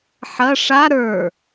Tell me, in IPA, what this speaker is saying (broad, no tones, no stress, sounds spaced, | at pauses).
ħ ɐ ʂ a ɾ ə˞